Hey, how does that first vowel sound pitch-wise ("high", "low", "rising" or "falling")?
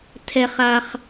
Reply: high